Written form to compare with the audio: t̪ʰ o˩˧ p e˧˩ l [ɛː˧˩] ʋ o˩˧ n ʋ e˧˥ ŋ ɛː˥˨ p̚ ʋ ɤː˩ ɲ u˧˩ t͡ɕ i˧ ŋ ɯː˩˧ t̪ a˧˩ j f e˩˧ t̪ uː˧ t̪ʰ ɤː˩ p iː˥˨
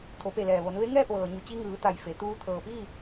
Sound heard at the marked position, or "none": ɛː˩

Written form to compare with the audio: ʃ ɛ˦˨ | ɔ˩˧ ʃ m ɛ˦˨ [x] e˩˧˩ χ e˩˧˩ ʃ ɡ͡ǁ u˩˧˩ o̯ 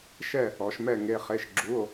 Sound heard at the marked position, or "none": ŋ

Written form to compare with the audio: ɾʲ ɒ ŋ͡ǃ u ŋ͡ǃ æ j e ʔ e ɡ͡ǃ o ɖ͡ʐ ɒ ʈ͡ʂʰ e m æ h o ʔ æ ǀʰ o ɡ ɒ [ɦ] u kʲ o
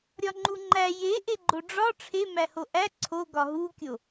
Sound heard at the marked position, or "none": ɦ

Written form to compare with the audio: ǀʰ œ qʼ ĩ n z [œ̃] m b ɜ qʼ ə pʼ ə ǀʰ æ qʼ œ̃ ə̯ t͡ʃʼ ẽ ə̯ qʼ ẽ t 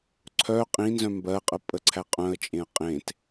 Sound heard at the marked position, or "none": œ̃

